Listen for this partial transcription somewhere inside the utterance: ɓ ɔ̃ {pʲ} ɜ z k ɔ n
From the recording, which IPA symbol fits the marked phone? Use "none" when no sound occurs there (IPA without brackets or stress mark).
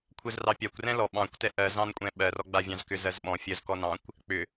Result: fʲ